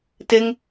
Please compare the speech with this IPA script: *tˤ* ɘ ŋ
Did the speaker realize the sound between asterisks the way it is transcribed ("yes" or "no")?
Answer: no